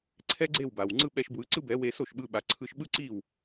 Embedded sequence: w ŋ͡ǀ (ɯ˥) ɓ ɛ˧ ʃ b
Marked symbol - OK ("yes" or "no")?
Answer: yes